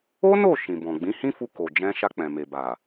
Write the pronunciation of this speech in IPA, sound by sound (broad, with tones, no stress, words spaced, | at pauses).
o˦no˦˨ ʃĩ˨bɔ̃˨ ɡ͡bĩ˨˦hĩ˦fu˧ko˨ d͡ʒɛ̃˧ʃa˧k͡pɛ̃˨me˨ ba˨